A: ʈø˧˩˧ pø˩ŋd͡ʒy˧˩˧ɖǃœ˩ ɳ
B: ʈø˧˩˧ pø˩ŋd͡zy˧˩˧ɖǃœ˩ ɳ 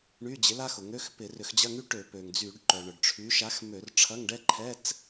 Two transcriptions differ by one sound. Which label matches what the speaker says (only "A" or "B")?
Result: B